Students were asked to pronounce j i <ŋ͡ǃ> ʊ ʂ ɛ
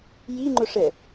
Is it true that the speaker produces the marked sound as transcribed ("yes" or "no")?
yes